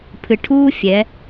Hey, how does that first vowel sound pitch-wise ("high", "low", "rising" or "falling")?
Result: low